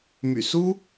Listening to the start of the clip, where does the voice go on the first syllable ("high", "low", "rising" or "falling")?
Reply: low